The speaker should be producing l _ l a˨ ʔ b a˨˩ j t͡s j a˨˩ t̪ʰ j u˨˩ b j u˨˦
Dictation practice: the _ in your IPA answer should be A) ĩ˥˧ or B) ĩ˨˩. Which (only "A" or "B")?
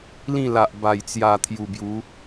A